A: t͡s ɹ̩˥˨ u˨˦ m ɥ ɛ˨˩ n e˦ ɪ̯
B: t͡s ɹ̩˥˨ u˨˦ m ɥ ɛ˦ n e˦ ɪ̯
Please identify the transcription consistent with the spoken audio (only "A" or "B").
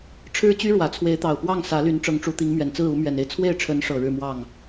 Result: A